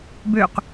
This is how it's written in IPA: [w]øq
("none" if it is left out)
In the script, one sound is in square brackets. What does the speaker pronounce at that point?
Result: b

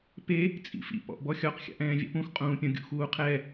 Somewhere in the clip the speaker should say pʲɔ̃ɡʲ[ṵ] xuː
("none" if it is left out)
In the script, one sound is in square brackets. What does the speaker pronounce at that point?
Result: ṵ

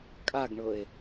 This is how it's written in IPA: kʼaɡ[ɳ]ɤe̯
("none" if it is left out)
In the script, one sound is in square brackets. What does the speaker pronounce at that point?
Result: ɳ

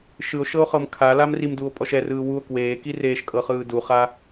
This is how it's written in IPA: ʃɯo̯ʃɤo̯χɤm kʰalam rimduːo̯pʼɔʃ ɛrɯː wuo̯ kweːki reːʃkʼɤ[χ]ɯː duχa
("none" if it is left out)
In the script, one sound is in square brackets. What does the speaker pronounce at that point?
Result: χ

